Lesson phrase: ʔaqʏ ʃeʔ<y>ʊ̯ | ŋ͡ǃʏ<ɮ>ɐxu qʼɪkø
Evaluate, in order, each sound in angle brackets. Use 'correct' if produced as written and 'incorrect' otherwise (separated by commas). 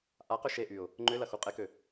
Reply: correct, incorrect